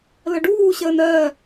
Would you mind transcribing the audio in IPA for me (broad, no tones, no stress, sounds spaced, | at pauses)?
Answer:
l ə ɖ uː ɕ əː n ɜ